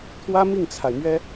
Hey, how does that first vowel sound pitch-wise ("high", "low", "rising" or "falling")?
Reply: high